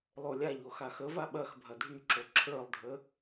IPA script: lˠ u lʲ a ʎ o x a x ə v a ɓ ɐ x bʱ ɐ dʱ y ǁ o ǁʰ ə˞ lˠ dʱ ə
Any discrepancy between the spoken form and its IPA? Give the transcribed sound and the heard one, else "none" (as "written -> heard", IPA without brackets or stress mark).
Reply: u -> o